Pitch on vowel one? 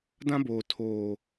high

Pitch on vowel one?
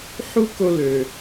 high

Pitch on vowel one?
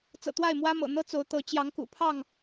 low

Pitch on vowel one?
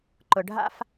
low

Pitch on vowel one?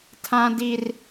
low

